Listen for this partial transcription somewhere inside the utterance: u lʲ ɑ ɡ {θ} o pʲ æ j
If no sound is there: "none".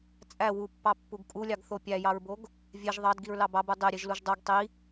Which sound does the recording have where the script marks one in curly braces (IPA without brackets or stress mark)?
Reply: θ